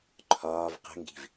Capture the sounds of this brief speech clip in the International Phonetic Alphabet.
ǃʰ ɒː v q ə̤ ŋ ɡ i̤ v

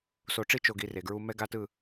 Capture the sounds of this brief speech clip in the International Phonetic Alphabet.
s o˨ ʈ͡ʂ i˦ t͡ʃ o˨ ɡ i˨ r e˨ ɡ ɹ u˦ m ɛ˦ ɡ a˦ t ɯ˦˨

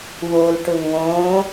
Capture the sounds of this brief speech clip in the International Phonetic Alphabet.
w o l ʈ ʊ ŋ õ

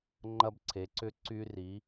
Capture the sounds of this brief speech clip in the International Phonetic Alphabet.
ŋ͡ǃ ɐ˧ b ǀʰ e˩˧ ǀ ʏ˧˥ ǀ y˧ r i˩˧

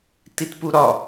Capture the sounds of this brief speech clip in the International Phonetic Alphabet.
t i t p u ɾ ɒ

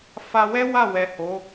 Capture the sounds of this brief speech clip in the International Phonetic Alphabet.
f a˧ w ɛ˦ w a˦˨ w ɛ˨ h o˨˦

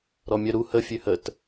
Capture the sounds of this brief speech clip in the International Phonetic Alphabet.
ɾ ɔ mʲ œ ɾ u h ə fʲ ø h ə t

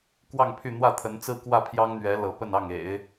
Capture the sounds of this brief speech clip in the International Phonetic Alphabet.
k w ɑ˥˧ ŋ pʰ y˥˧ n̪ w ä˥˩ t̪ʰ ə˧˥ n t͡s ɹ̩˥ k w ä˥˩ pʰ j ɑ˥ ŋ n̪ ɥ ɛ˧˥ l ɤ˧˥ p ə˥˧ n ɑ˥˩ ŋ ḛ˨˩˦ ɪ̯

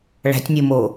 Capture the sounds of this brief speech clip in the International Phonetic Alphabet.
ɭ æ̤ tʲ nʲ o m o

